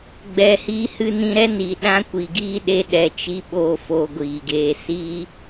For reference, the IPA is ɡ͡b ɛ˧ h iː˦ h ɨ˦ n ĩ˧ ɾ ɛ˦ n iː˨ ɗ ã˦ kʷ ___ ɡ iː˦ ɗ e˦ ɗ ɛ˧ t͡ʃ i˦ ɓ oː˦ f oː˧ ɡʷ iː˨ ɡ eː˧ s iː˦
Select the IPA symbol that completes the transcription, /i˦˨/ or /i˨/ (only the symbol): i˨